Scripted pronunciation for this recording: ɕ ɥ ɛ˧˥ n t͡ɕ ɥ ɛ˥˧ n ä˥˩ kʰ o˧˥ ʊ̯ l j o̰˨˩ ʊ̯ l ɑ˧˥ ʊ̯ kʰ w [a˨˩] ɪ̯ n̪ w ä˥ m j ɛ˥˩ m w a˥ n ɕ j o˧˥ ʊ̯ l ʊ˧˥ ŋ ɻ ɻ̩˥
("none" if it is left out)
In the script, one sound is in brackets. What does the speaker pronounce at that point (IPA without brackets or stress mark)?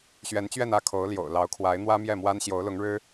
a˧˥